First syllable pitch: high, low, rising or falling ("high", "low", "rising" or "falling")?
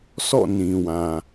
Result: falling